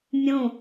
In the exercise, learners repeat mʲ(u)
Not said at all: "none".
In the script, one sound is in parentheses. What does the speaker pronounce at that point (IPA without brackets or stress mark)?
ũ